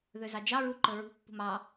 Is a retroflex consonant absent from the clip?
yes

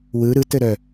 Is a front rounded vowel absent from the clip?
no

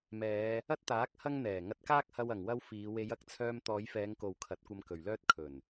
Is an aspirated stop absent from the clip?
no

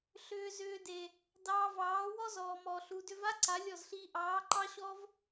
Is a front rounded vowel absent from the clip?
no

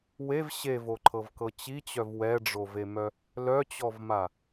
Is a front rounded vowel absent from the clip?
no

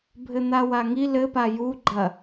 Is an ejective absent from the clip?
yes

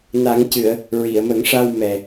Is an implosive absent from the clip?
yes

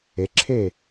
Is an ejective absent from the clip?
yes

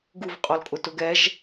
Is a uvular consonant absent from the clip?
no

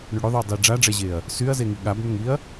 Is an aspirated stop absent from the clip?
yes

